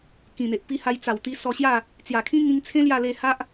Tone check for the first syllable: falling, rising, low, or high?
low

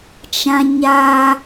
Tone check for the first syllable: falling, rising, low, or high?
high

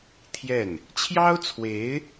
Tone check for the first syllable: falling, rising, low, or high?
falling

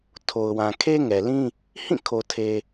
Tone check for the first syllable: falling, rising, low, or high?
low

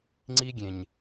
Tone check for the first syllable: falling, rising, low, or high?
high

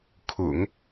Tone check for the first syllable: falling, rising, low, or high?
low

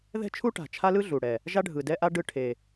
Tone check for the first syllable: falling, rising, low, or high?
high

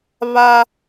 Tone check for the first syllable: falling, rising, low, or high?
high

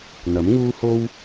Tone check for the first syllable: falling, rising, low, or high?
rising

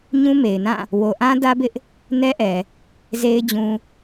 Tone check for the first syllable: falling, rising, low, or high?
high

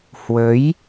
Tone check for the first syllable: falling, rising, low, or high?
rising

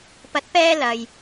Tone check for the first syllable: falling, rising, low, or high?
rising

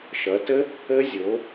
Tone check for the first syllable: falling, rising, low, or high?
rising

